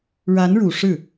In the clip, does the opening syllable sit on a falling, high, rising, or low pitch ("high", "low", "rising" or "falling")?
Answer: rising